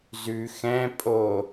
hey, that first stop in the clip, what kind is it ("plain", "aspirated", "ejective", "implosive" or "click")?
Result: ejective